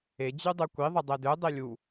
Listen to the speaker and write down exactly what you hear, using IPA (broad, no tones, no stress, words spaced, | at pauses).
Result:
e d͡ʑydˤykʷi ðˤɯdˤedø dˤilʲu